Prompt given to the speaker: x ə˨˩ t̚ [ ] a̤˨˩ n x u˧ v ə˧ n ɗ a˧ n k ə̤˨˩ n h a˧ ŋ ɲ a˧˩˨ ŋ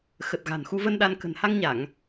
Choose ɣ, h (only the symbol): ɣ